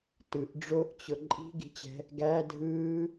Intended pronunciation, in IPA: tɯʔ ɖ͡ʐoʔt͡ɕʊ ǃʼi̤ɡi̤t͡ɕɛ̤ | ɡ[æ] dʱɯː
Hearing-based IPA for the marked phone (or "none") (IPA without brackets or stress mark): æ